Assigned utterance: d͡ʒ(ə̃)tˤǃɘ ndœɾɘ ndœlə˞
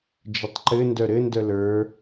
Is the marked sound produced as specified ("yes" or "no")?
no